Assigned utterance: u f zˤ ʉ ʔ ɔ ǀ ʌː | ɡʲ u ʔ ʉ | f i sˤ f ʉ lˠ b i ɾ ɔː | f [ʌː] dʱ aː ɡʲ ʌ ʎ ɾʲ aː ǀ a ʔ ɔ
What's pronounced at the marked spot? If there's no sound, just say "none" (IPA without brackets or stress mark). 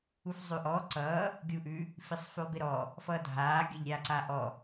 ʌː